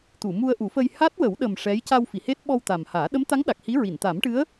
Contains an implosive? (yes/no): yes